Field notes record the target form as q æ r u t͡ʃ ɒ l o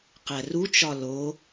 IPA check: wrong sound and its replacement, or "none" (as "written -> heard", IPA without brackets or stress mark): none